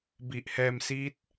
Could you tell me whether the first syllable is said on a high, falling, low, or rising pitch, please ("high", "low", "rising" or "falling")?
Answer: low